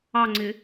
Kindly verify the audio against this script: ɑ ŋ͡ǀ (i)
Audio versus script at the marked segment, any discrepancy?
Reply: yes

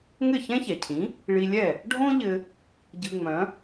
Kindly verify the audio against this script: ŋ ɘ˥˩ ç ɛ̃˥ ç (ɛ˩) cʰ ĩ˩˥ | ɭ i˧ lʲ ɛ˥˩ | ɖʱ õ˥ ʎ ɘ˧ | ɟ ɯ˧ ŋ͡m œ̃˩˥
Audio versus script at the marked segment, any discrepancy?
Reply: no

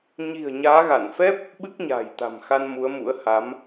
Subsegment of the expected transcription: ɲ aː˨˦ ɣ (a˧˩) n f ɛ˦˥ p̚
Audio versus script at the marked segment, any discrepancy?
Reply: no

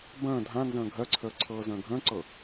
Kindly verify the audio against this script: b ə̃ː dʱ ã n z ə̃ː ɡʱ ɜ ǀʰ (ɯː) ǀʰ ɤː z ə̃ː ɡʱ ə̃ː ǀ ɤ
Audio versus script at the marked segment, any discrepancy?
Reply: yes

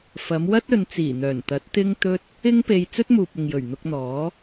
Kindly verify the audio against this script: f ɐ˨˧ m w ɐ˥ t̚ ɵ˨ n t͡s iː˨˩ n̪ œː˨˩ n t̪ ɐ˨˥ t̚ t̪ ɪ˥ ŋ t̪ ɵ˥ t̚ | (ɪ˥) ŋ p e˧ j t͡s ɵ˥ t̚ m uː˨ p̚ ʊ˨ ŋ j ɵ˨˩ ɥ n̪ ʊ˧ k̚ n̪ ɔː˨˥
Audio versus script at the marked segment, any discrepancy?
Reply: no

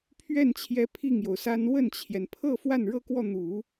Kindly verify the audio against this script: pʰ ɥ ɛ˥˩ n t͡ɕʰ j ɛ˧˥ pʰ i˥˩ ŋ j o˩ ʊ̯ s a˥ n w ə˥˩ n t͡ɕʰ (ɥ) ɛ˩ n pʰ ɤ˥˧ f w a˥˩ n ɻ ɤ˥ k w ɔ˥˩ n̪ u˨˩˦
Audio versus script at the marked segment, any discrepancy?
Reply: yes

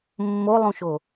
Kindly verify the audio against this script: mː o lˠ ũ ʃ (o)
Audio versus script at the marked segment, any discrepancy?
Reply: no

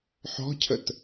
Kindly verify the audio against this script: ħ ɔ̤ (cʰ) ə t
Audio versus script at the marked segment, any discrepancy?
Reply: no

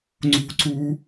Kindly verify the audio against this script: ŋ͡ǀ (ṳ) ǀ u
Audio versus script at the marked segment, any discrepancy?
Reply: no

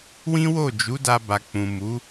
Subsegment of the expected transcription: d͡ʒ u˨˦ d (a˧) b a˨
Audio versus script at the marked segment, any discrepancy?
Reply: no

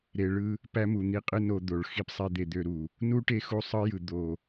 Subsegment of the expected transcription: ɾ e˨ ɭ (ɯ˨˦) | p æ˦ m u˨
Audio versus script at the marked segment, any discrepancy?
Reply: yes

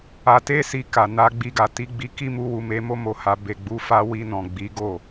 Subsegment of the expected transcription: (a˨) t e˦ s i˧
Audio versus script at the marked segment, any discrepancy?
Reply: yes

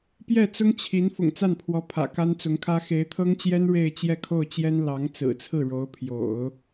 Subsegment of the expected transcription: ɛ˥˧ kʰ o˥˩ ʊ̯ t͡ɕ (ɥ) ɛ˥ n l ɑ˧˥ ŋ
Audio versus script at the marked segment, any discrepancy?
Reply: yes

